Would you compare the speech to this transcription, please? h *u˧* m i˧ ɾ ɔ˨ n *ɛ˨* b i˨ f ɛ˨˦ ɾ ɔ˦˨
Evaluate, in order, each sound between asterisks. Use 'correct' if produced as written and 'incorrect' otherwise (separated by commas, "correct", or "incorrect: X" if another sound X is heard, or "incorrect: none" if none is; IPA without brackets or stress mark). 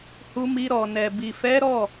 correct, correct